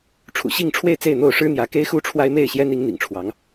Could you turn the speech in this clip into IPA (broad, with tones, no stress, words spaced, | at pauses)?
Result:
ʈ͡ʂʰṵ˨˩ɕi˥˨ŋʈ͡ʂʰwe˥˨ɪ̯ t͡se˥˨ɪ̯n̪o˥˨ʊ̯ʂɻ̩˦n̪jä˨˦ ke˦ɪ̯xu˦ʈ͡ʂʰwa˦ɪ̯ me˥˨ɪ̯ɕjɛ˦ni˨˦ŋ n̪ḭ˨˩ŋʈ͡ʂʰwɑ˨˦ŋ